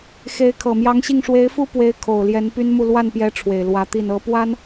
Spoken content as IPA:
x e˧˥ ɪ̯ kʰ ɤ˨˩ m j ɑ˧˥ ŋ ɕ i˥˩ ŋ ʂ w e˧˥ ɪ̯ f u˥ p w e˧˥ ɪ̯ kʰ o˨˩ ʊ̯ l j ɛ˧˥ n p y˥ n m u˥˧ l w a˥˩ n p j ɛ˧˥ ʈ͡ʂʰ w e˨˩ ɪ̯ l w ä˧˥ t̪ i˥˩ n ɤ˥ p w a˥ n

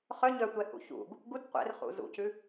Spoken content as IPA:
χ œ ɲ œ tʷ ɛ h ṵ ç ṵ ɡ | ɡ u d qʷ ɛ̰ r χ ṵ z ṵ c ʉ

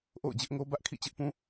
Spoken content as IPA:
ʔ o̰˦˨ ʊ̯ d͡ʑ ɪ˦ ʔ ŋ o˦ b ä˦ ʔ kʰ ḭ˦˨ t͡ɕ ɪ˦ ʔ p ũ˦

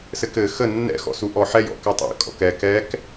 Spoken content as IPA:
s ɘ k ɘ x ə nː ɛ̰ x ɔ̰ s u ʔ ɔ ħ ɛ j ɔ̰ k ɘ tˤ ɛ̰ kʼ ɔ̰ k ɛ k ɛ k

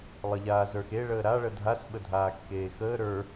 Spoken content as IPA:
lˠ ə ʎ aː z ə˞ x e ɭ əː ɾ a ɭ ə dʱ a s ɓ ə dʱ aː kː eː x əː ɾ ə˞

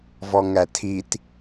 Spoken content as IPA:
v ɔ ŋ æ tʰ i t

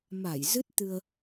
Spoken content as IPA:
m a˧˩ j z ɨ˦˥ t̚ t̪ ɨ˧ ə̯

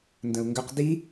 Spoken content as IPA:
n d ə̃ u̯ ŋ ɡ ʏ q d i

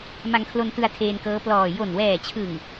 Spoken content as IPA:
m a˧ ŋ kʰ l o˧ n t ɯ˧ a̯ tʰ eː˧ n k ɤː˦˥ p l ɔː˨˩ j o˨˩ n w ɛː˨˩ t͡ɕʰ ɯ˨˩ ŋ

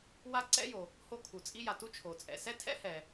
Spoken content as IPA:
w a˥ ǀ ɛ̰˥ j o˩ | h o˥ kʰ u˩ t͡sʼ i˥ j a˩ t u˥ t͡ʃʰ o˩ t͡sʼ ɛ̰˩ s ɛ˥ tʰ ɛ̰˥ h ɛ˩

